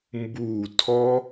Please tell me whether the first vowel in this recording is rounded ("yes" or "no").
yes